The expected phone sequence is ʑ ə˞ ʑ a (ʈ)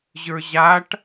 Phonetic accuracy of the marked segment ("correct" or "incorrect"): correct